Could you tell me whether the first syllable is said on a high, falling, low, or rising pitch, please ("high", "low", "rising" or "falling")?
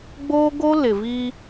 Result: high